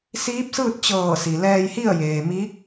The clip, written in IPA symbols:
siː˧˥p̚sɯː˥˨t̚ t͡ɕɤː˧˩si˩ lɛː˧jhi˥˨ə̯jeː˩ mi˧˥k̚

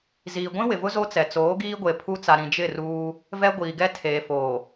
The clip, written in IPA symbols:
ziː˨ɡʷĩ˦wɪ˨vʊ˦ zo˦t͡sɛ˨t͡soː˨˦ ɡiː˦ɡʷe˨pʰu˦t͡sa˨ ɾĩ˨d͡ʒɪ˦˨ruː˦ | vɛ˦ɡʷiː˨ɡɛ˦ tʰeː˨foː˨

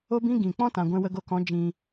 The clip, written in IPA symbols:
o˦bĩ˦ ɡĩ˨ k͡pɔ̃˦tã˨ ɡʷɛ̃˧wə˧ɡo˧kɔ̃˨˦ d͡ʒĩ˧

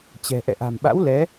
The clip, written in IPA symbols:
t͡ɕɛ̤˨˩ ʔɛ̰˧˨ʔa̤˨˩mɓa̰˧˥w lɛ˨˦

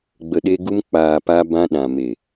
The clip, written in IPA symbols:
ɡ͡bə˨ɗe˧ ɡu˧mk͡paː˨ pa˧bã˧ ɗã˨me˨

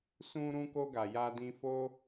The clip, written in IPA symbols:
sũ˧ɾũ˧ko˧ɡa˨ ja˧dĩ˧fo˦

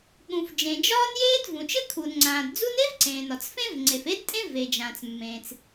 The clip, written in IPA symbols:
ɠũ˩fd͡ʒẽ˩ d͡ʒɒː˥njeː˥d vũ˩t͡ʃɘ˥ kʰuː˩nŋ͡ǀãː˩d d͡zu˥n e˥vǀẽː˩n ɒ˩t͡sfẽ˥v ŋ͡ǀe˩f e˥dtʼẽ˥ ve˩d͡ʒãː˩t͡smːẽː˩t͡s

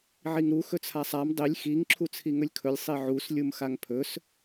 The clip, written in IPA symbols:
ʕiŋɾu xɵt͡sʰasˤam dˤilʲ xiŋ ǁʰut͡sʰiŋɵlʲkʰɵlʲ sˤiʕus lʲumxaŋpʰɵs

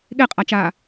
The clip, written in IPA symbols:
ɠeqʼat͡ʃaː

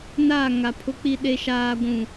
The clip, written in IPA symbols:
naː˦˨ŋa˨pʰʊ˦k͡pi˦ ɗe˦ ʃaː˦ ɡʷũ˦˨

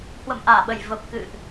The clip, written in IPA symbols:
hwə̰˧˨mʔaː˧˩ɓə˧˩j və˨˩p̚kɨ̰˧˨ʔ

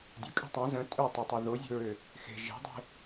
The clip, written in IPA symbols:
dʲokʼe̤ tˤõ zə̃ tʼøtˤøtˤo ðozʲo̤ɹø | xe̤ ʒe̤dˤe̤

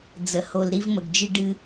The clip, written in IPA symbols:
d͡zə˨ ho˨lɾi˦vmə˨ɡd͡ʒɨ˦ ɖɨ˦

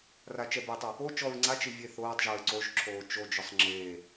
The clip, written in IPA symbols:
rat͡ʃɛbetˤʊ | o t͡ʃɔɹ ŋ͡ǀat͡ʃi vʲeθoːtˤʒɛɹ ǀoʒǁʰoː t͡ʃod͡ʒʊsˤ ŋ͡ǁe

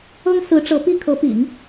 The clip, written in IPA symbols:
ɤ˥ŋsɹ̩˧˥ʈ͡ʂɤ˧˥ pi˥kʰɤ˧˥pḭ˨˩˦ŋ

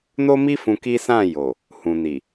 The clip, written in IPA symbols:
no˦mi˦ fũ˧ki˦ sã˦˨ jo˨ | hũ˨ni˨

